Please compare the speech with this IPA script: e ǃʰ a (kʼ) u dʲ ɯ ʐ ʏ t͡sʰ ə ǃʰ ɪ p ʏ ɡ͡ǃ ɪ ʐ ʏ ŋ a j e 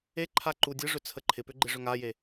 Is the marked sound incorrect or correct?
incorrect